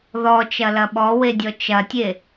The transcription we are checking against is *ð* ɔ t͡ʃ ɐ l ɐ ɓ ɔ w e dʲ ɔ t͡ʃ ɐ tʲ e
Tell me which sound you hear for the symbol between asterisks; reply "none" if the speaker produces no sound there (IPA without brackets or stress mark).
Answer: ð